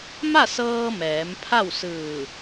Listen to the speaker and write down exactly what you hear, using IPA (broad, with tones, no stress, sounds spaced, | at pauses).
m a˥˨ s ɤː˧ m ɛː˩˧ m pʰ a˥˨ w s ɯː˧˩